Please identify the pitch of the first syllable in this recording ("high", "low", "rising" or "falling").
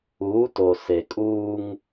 rising